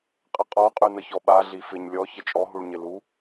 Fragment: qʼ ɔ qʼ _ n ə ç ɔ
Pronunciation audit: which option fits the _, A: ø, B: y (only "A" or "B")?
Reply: B